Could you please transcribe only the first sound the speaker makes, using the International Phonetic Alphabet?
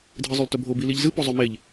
dʱ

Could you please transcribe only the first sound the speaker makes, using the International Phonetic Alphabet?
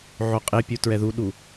ʕ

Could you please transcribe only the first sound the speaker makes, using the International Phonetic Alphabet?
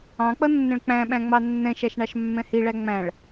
ɑ̃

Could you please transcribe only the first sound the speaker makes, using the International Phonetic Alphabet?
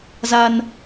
z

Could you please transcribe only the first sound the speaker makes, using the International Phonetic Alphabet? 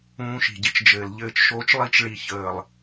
ũː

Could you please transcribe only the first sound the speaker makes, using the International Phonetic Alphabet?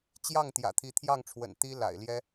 t͡ɕ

